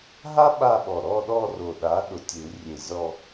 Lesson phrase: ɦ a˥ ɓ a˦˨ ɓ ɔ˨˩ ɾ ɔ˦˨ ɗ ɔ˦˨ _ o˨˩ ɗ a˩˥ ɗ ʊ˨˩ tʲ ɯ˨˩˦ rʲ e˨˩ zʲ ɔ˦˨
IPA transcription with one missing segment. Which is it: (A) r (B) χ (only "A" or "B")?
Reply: A